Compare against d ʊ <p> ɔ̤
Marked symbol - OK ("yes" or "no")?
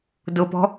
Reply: yes